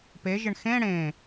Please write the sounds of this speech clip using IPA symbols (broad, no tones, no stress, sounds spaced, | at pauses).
p e ʒ ɪ ɳ x ẽ ɽ ẽ